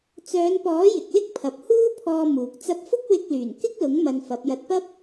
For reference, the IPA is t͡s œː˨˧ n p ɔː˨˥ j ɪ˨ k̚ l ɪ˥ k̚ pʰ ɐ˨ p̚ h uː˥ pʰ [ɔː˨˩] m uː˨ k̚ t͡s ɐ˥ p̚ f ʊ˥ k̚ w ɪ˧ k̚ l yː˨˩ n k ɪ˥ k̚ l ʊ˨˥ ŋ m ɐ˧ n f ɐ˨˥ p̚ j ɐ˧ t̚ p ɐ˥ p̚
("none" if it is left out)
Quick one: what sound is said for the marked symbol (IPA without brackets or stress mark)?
ɔː˧